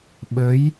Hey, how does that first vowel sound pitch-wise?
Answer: rising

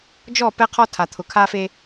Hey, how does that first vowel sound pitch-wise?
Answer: falling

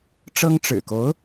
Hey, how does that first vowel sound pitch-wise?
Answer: high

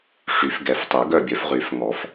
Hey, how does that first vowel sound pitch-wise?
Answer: rising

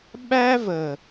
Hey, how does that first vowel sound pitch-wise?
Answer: high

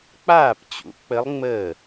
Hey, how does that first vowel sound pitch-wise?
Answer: falling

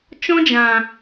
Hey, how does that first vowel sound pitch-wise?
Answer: high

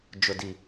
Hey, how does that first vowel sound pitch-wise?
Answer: low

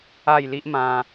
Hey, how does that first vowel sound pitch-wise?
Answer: falling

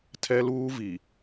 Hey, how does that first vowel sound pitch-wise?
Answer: high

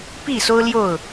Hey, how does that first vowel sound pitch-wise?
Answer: falling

